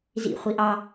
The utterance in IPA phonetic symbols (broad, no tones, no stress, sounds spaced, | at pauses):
z ḭ χʷ i ʔ ɑ